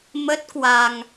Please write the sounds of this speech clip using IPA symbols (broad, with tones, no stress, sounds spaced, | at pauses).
m ə˦˥ t̚ k w a˧ ŋ